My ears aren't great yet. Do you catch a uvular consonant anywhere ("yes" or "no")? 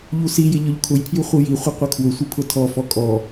yes